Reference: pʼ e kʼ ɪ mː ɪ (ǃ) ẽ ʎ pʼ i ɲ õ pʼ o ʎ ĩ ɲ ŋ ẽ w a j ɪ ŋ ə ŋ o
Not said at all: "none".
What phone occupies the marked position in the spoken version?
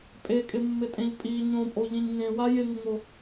tʼ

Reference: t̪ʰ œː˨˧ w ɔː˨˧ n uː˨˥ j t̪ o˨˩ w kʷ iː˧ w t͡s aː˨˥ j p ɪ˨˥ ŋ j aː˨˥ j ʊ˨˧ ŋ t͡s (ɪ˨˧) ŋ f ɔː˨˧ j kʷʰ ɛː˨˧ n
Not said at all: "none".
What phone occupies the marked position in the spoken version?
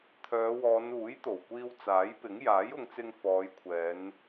ɪ˧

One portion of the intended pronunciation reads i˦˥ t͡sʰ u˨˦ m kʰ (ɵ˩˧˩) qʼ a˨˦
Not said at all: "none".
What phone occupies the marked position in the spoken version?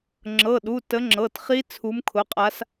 ʊ˩˧˩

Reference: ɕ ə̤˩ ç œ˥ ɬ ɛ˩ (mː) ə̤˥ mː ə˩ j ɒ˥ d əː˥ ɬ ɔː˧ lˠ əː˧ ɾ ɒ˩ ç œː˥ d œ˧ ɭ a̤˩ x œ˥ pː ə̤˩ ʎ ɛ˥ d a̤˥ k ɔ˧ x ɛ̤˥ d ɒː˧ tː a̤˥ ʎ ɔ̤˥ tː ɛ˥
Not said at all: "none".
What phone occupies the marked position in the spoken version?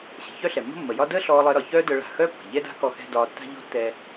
mː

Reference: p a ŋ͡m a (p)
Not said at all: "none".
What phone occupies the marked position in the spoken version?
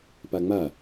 none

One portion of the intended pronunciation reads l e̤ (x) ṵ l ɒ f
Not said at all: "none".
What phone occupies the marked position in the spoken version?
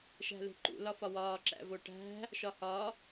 ǃ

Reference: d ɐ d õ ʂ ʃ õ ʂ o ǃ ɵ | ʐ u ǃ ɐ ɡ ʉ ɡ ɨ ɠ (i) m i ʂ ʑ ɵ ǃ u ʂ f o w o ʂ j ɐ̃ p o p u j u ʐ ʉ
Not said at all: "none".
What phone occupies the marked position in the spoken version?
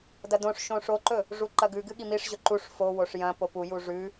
i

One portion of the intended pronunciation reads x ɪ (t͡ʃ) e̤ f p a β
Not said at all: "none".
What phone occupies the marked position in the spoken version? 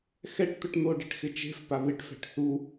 t͡ʃ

